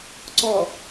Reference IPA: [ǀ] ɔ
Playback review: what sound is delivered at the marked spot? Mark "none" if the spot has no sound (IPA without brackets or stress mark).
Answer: ǀ